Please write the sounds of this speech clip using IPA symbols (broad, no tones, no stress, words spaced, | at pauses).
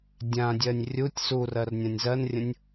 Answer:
dʲãdʲɜnʲ rʲutʲ surɜr nʲãnʲzɜnrʲə̃nʲ